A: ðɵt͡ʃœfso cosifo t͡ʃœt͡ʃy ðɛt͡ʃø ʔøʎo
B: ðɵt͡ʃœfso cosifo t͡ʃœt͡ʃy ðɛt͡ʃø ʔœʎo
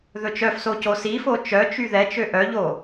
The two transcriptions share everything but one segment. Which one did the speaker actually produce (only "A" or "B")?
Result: B